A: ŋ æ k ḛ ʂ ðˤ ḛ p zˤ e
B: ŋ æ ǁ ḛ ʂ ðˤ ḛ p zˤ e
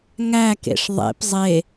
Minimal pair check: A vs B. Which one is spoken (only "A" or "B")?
A